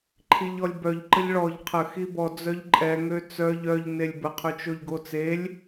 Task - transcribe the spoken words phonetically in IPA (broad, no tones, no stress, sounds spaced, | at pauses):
ǃʰ i ʎ ɔ lʲ b œ ʎ ǃ ə ʎ ɭ ɔ ʎ qʰ ə x i b ɔ d͡z œ ʎ ǃʼ ɛ ŋ ø t͡s œ ʎ œ ʎ n e lʲ b ə qʰ ø t͡ʃ o ʎ ɡ o t͡s e lʲ